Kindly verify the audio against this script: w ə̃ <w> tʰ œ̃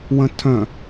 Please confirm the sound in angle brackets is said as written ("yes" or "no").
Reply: no